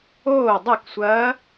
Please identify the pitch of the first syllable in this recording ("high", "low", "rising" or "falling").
falling